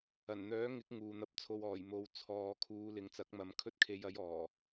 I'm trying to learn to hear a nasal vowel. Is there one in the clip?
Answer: no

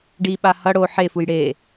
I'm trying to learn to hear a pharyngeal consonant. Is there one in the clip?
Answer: yes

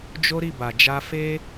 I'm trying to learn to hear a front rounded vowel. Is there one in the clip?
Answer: no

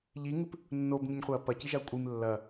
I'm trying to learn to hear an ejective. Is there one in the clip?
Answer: yes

